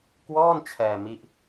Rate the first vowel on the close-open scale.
mid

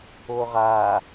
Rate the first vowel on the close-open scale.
mid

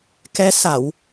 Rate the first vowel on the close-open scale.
mid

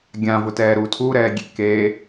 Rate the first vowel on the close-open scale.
open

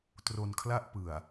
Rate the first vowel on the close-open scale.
mid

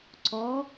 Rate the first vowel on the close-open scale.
mid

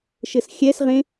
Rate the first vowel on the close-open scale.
mid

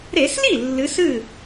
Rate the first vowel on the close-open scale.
mid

